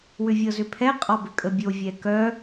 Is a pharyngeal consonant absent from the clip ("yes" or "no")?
yes